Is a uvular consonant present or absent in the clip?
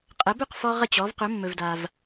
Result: present